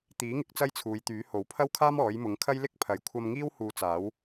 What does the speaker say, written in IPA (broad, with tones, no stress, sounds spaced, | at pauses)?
t̪ iː˨˥ ŋ ɪ˨˥ k̚ t͡s ɐ˥ j t͡sʰ uː˨˧ j t̪ yː˨˥ h o˨˥ w pʰ ɐ˥ w kʰ aː˥ m ɔː˨˥ j m ʊ˨˥ ŋ kʰ ɐ˥ j l ɪ˥ k̚ pʰ ɐ˨˧ j kʷʰ ɐ˧ m ŋ iː˥ w h uː˧ t͡s aː˨˥ w